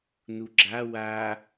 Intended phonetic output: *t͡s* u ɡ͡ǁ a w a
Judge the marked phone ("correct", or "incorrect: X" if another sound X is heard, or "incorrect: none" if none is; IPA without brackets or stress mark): incorrect: n